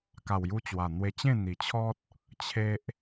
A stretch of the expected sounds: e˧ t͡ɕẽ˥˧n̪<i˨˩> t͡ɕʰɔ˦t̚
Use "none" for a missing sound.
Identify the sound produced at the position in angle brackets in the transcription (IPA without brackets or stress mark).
i˨˩